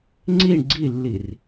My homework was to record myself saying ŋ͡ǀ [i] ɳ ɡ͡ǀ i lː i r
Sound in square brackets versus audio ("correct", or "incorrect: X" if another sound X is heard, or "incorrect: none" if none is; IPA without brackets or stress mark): correct